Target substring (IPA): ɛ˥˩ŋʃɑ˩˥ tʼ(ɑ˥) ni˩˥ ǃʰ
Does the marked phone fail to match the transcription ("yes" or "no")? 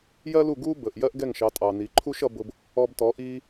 yes